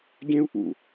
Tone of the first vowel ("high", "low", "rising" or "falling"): high